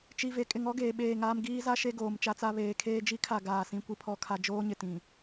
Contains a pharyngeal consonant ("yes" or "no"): no